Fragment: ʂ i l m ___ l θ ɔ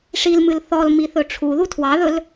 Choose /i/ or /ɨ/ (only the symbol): ɨ